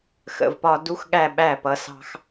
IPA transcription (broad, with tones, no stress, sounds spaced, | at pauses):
x ə̰˨ v p ɒ˧ d u˦ x ɠ æ˦˨ ɓ æ˦˨ p ʌ˧ s ɑ̤˦ x